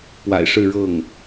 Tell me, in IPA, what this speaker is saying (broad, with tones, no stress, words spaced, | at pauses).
pwa̰˨˩ɪ̯ʂɻ̩˥˧ ɻɤ˥˩ŋ